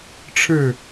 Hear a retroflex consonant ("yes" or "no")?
yes